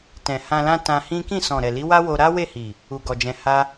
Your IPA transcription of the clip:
t ɛ̃˨ h ã˧ l ã˦ t ã˧ h ĩ˦ k ĩ˦˨ s ɔ̃˨ ɾ ɛ˨ l i˨˦ w a˦ w o˧ ɾ a˦ w e˦˨ h i˨ | u˨ ɡ ɔ˨ d͡ʒ ɛ̃˧ h a˦

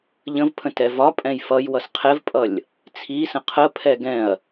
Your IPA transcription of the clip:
ʎ ə̃ v pʰ ə̃ t ɛ v ɒ pʼ ɛ̃ j f ʌ j w ʌ s qʰ ɛ v pʼ ʌ lʲ | t͡sʰ i s ə̃ qʰ ə pʰ ɛ ɡ ɛ̃ ɐ̯

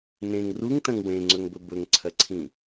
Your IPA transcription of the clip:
n ẽ ŋ r u ŋ t ɐ̃ ŋ w ẽ ŋ͡ǀ ɵ ŋ b ɵ b ɵ ŋ ǀʰ ɐ ǀʰ ĩ

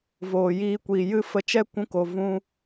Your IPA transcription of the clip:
v oː˨ j iː˧ kʷ iː˨ j ɨ˦ f ə˧ t͡ʃ ɛ˦ kʷ ũ˧ k o˨ v ũ˧

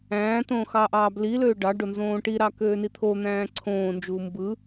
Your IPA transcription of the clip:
æ̃ː t õː x ɑ ʔ ɑː b l i l øː ɖ ɑ ɖ o n z õː ʈ i ɾ ɑ k øː n i t̪ʰ o n̪ æ̃ː ǀʰ õː n d͡ʒ uː m b ɯ

